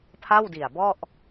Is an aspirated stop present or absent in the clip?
present